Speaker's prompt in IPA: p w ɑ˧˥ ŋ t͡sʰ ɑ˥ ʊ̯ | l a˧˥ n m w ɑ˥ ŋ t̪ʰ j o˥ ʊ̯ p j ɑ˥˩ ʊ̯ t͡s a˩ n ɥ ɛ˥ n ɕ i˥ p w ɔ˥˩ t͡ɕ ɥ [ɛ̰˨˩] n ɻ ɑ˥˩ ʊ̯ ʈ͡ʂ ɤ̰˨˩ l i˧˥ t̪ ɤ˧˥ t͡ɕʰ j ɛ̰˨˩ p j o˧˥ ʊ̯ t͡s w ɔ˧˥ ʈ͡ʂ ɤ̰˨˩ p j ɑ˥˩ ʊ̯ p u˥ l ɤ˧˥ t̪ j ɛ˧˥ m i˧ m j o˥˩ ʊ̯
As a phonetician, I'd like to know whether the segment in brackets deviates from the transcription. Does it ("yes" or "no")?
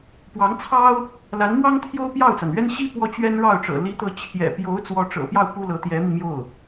yes